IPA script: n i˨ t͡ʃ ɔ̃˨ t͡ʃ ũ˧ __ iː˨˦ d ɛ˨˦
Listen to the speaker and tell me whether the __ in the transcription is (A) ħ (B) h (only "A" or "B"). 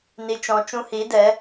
B